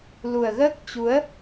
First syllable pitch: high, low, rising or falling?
low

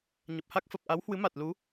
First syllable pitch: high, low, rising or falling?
low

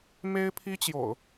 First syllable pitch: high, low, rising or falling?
high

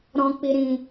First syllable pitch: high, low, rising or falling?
high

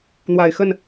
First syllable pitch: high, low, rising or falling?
low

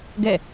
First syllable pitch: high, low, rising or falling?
falling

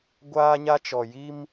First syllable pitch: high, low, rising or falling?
high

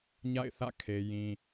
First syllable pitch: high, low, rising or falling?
falling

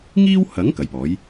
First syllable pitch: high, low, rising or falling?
high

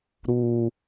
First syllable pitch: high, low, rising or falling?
high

